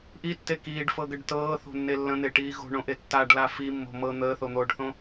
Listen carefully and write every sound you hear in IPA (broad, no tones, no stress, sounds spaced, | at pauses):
ʔ i tː e k iː ɖ f ɤ ɡ ə ɖ t ɤː θ o̤ nː e lː ə̃ n̪ e ʈ iː ɣ o̤ ɳ õ ʔ e tː a ɖ l a f i mː o̤ m ɤ n̪ əː θ o n̪ oː ɖ θ õ